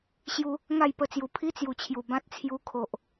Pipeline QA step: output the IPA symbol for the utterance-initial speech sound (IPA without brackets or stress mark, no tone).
ɕ